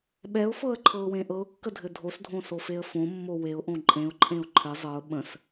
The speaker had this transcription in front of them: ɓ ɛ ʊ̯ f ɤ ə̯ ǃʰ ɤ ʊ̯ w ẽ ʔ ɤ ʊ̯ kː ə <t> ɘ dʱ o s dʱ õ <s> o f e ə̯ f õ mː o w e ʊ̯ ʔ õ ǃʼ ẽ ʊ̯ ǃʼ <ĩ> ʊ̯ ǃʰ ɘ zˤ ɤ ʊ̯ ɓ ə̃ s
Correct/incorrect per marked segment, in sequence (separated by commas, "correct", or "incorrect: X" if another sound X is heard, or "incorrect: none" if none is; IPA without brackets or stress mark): incorrect: dʱ, correct, incorrect: ẽ